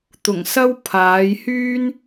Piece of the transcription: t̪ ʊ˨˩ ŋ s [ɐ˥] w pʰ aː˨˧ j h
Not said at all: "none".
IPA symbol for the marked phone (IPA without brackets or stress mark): ɐ˥